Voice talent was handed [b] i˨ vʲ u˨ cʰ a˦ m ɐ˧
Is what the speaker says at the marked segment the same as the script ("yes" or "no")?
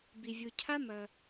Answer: yes